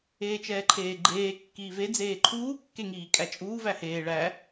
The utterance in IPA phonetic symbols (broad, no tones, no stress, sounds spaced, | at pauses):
eː t͡ʃ ɛː ǃʰ eː ɡ͡ǃ eː kː iː v e d͡z eː ǃʰ uː kː e ŋ iː kʼ æ t͡ʃʼ uː v æ h eː ɭ æ